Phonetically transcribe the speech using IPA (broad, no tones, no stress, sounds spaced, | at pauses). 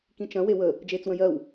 k ĩ t͡ʃ ɐ̃ w e w ə | d͡ʒ eː t͡s w ə̃ j ɜ w